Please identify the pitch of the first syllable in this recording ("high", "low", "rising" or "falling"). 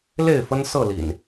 falling